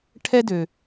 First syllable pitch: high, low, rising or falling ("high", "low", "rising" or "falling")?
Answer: high